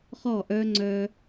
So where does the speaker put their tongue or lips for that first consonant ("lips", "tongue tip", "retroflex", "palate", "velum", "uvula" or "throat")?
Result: uvula